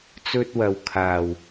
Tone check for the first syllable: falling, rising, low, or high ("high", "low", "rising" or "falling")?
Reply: high